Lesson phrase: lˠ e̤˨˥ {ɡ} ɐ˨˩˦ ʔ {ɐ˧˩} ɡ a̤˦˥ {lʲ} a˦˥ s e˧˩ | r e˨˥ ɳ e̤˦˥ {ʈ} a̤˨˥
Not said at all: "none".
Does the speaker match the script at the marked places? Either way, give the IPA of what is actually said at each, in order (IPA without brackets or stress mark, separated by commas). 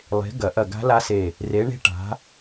ɡ, ɐ˧˩, l, ʈ